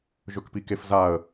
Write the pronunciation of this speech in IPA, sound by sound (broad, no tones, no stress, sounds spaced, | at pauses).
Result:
ʒ ɵ k p i k e f z a ə̯